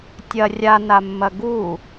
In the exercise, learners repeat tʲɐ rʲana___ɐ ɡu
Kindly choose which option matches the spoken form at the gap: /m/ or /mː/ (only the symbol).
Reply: mː